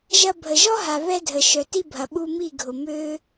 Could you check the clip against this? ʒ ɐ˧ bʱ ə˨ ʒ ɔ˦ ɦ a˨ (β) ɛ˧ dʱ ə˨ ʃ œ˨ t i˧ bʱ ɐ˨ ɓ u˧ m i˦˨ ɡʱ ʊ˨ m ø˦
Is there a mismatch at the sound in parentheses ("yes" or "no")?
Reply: no